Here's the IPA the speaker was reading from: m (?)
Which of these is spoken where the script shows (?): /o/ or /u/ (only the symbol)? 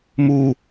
u